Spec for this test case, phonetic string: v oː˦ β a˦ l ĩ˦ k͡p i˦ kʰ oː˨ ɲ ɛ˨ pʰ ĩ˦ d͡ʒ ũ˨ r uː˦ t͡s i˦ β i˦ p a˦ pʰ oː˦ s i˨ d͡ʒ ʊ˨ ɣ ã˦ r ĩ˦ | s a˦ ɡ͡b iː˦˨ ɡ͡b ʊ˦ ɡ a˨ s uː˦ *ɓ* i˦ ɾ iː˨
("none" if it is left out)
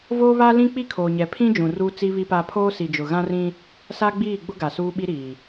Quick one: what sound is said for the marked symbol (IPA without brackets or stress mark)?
ɓ